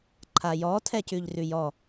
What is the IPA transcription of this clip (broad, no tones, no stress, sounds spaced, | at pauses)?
ǃʰ a j ɔ tʰ ɛ c ʉ ʎ r ʉ j ɔ